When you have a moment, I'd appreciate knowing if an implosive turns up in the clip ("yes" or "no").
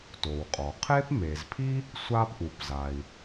no